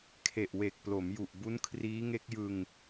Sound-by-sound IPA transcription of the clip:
kʰe˨˩ʔwe˨˩k̚plo˩˦mju˨˩ʔ bu˦˥nkʰriː˦˥ŋe˦˥k̚jɯ˧ŋ

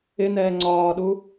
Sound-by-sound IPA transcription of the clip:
ɪnɛː ŋ͡ǀɒːɗu

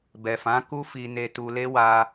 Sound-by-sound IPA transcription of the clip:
bɛ˨fã˨˦ku˦ fi˧ ne˧tu˧le˦ wa˧

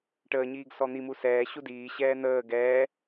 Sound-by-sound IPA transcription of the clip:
ʈəːɲiːɡ sɔn̪imu sɛː ɕudiːɕɛː n̪əː ɡɛː

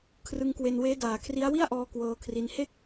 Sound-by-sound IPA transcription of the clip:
kʰrɯ˧ŋkwe˧nweː˦˥ daː˩˦kʰri˦˥a̯ wi˥˩a̯ʔɔː˧ kwɤː˧kʰri˧n he˥˩k̚

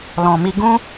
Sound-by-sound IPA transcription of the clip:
lɔ̃˨mi˧ ɡũ˦

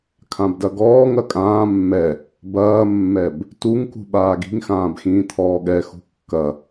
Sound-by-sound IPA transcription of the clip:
kʰãbdɐɡɔːŋ ɐkʼãː mːɛ | bɐːmːɛb | tuŋkṳ ɓaːɡi̤ŋxãːbxĩː t̪ʰɔːɠɛ xṳkːɐ

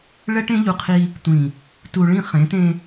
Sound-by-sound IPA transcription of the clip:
ɭɛ˦ʈẽ˦ʎu˨qʰi˦ | tʷĩ˨ | tu˨ɭĩ˦˨ χẽ˨˦tẽ˦

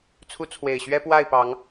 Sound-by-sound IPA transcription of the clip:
t͡sʰu˨˦ t͡sʰwe˨˩ɪ̯ɕɥɛ˦ pwa˥˨ɪ̯pɑ˨˦ŋ

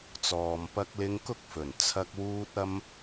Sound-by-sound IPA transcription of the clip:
t͡sɔː˨mpɐ˧k̚lɪ˧ŋ kʊ˥k̚fɵ˨˩nt͡sʰɐ˧k̚ wuː˧t̚ɐ˧m

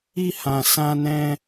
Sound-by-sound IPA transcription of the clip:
i˦hã˧ sã˦nɛ̃˦

